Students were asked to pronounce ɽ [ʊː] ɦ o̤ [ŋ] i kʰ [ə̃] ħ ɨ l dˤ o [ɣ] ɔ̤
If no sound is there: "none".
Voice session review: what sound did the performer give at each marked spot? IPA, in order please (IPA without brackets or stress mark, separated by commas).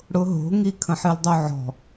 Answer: ʊ, ŋ, ə̃, ʕ